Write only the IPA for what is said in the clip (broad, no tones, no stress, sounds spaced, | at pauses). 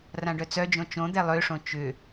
r ã ɖ œ t͡s œ d͡ʒ õ t͡ʃ õ d̪ ɛ lˠ ø ʂ õ t͡ʃ ʏ